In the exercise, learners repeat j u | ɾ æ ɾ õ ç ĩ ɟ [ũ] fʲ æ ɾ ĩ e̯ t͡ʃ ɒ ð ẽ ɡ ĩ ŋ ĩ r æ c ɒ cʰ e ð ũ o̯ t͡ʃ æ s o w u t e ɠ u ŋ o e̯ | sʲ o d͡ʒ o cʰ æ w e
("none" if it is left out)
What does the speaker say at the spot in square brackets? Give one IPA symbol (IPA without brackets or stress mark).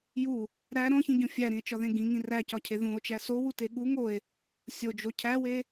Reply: õ